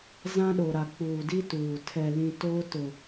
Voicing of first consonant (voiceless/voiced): voiced